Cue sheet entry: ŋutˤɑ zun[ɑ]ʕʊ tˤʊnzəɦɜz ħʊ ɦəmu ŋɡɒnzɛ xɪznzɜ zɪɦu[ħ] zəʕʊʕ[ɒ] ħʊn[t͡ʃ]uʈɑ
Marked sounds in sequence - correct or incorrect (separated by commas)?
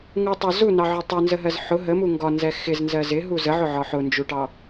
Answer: correct, incorrect, correct, incorrect